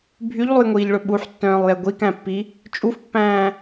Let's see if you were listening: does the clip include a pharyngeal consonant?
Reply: yes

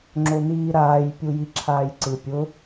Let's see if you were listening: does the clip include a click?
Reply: yes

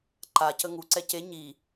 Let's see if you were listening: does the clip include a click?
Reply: yes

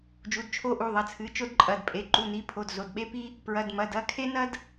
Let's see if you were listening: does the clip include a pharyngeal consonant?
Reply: no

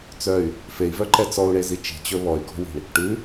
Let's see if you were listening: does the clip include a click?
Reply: yes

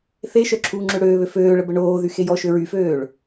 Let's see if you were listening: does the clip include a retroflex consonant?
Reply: yes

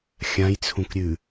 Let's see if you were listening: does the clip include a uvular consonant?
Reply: no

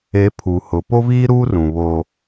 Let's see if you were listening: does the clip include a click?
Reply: no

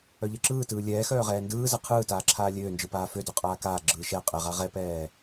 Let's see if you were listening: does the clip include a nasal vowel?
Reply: no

